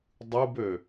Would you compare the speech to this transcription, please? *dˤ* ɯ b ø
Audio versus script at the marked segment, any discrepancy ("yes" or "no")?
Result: no